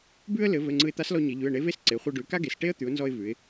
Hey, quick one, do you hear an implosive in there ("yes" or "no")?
no